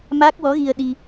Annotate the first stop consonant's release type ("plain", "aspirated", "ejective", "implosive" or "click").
plain